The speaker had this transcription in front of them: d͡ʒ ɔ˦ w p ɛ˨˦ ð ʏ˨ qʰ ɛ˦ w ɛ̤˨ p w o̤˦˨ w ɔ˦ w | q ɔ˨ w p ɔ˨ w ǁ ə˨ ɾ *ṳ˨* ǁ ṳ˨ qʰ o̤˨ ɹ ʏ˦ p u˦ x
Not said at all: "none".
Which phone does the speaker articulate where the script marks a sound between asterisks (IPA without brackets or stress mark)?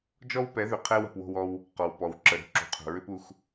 ṳ˦